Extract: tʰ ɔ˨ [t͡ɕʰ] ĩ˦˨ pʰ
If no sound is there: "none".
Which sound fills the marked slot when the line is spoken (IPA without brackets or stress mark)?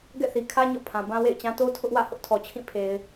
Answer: t͡ɕʰ